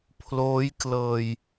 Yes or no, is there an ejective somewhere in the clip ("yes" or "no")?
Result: no